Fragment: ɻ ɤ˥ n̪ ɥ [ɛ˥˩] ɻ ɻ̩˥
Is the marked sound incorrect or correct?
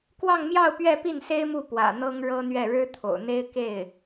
correct